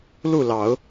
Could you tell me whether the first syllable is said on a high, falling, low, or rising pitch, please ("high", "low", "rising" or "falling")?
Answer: falling